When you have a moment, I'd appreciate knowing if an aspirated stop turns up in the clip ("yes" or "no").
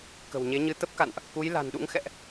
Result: no